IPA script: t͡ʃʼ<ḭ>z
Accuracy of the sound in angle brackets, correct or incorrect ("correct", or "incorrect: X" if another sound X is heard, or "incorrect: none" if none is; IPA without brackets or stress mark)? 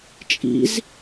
correct